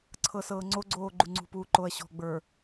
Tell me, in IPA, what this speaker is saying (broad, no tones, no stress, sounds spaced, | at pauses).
ǀʰ ɤ s ɤː ŋ͡ǀ o ɡ͡ǀ oː ɡ͡ǃ u ŋ͡ǀ ṳ p uː ǃ o ɐ̯ ɕ ɔ̤ ɡ͡b ə˞